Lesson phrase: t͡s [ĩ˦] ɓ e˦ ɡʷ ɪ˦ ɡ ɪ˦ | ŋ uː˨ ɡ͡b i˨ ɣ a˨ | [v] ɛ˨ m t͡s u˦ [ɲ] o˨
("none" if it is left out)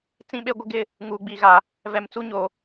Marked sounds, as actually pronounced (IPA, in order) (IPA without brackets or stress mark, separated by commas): ĩ˦, v, ɲ